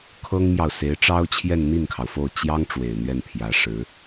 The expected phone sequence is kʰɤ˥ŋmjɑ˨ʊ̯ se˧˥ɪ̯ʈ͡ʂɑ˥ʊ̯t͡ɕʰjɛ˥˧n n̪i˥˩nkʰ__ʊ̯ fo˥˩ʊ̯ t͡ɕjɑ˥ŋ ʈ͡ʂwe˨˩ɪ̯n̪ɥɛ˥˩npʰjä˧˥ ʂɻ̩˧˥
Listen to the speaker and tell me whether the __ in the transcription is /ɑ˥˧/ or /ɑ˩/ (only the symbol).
ɑ˩